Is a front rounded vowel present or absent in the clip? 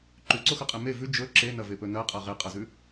absent